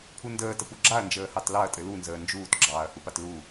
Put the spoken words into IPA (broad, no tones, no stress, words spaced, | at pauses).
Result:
pʰundəːtə puɡ͡ǁaɐ̯nd͡ʒəːhɑt lɑɐ̯tʼɘ lunzəː nd͡ʒuːtɡ͡ǁɑːɐ̯ hupatluː